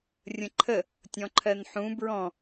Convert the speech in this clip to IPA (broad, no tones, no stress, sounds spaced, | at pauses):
rʲ ə̃ ǃʰ ə | tʲ ɔ̃ ǃʰ ɜ n ħ ũ b ɹ ɔ̃